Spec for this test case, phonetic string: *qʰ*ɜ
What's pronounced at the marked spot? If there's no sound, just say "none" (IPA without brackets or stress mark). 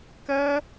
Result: k